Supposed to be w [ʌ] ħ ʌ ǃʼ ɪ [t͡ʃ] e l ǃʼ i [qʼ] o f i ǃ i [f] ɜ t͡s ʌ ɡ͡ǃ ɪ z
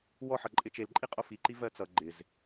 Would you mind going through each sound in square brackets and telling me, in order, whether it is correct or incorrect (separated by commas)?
incorrect, correct, correct, incorrect